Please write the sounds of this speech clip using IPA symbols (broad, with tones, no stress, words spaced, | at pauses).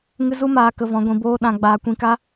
ŋɨ˦ zu˦maː˧ kə˧vɔ̃˨˦ ɡʷĩ˨ boː˧ ɗã˧ ɡ͡baː˨kʷĩ˨ka˦